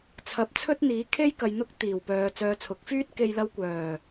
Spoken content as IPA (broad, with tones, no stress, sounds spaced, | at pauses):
t͡sʰ ɐ˨˥ p̚ t͡sʰ ɵ˥ t̚ n̪ iː˨˥ kʰ e˥ j k ɐ˨ j n̪ ʊ˥ k̚ t̪ iː˨˩ w p œː˨ t͡s œː˨ t͡sʰ ʊ˨˥ k̚ f yː˥ t̚ k e˧ j l ɐ˥ w kʷ œː˨˩